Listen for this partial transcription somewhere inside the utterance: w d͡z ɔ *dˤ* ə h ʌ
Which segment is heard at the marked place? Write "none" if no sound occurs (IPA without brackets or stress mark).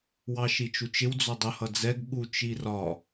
dˤ